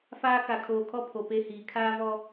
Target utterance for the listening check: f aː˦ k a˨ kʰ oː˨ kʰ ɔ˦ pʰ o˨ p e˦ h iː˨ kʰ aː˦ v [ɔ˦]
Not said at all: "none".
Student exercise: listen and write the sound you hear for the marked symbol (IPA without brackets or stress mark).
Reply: ɔ˦